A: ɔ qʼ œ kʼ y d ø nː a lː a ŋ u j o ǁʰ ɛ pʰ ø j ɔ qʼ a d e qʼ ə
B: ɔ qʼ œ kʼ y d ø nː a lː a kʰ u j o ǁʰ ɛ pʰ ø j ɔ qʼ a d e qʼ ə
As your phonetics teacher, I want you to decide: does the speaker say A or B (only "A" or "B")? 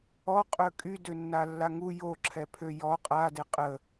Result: A